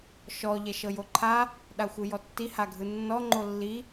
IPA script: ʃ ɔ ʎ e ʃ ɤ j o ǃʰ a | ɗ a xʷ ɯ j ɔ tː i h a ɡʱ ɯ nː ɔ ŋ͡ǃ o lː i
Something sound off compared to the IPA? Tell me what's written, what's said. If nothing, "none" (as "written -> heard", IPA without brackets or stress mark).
e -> ɛ